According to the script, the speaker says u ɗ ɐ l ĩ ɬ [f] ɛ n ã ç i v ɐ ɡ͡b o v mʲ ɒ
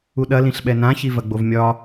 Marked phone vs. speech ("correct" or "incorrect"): incorrect